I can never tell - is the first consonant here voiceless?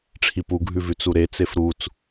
yes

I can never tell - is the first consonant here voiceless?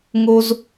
no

